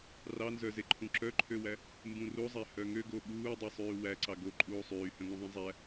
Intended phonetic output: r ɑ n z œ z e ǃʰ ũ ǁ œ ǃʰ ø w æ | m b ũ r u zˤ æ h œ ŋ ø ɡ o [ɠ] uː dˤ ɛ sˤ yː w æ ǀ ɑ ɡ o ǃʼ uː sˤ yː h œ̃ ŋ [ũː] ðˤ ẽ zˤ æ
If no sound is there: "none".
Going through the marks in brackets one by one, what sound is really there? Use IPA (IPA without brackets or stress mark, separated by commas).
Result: ɠ, ũ